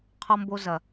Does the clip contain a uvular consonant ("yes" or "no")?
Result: yes